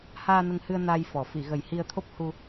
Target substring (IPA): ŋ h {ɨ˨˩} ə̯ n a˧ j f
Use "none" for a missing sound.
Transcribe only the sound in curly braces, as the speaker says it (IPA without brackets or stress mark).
ɨ˧